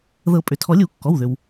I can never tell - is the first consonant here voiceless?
no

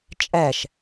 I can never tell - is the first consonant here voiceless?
yes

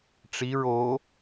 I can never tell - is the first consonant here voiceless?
yes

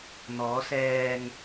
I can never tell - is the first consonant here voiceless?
no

